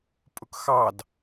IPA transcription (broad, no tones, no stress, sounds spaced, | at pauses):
pʼ ʊ k x ɑ d